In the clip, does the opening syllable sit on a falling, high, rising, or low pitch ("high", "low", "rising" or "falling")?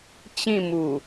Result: falling